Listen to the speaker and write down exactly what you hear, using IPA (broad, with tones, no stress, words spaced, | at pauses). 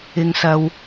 ɪ˨ŋsɐ˨w